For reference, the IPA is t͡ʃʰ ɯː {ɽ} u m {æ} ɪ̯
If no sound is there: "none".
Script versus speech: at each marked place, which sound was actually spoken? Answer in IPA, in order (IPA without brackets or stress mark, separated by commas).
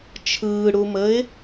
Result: ɽ, ə